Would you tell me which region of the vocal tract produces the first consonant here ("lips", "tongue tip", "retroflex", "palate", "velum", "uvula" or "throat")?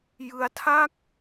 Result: palate